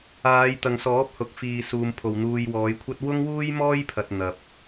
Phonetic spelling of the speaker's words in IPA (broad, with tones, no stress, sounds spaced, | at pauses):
aː˨˧ j t̪ ɐ˨ ŋ s ɔː˨˥ p̚ h ʊ˨ k̚ f iː˨ s uː˨ m pʰ o˨ w n̪ uː˧ j w ɔː˨˧ j kʷʰ ɐ˥ t̚ w ʊ˥ ŋ w uː˥ j m ɔː˥ j pʰ ɐ˧ t̚ n̪ ɐ˨ p̚